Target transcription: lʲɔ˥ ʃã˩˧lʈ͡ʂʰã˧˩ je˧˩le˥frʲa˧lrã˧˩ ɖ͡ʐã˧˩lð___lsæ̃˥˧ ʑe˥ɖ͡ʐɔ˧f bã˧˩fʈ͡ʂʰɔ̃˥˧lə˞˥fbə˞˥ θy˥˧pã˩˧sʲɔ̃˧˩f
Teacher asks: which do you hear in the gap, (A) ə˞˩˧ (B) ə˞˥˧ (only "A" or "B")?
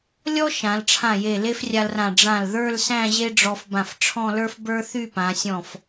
B